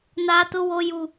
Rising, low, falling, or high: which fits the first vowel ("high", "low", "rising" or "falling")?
low